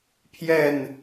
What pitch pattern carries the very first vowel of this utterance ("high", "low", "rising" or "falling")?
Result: falling